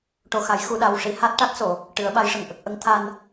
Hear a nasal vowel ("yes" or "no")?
no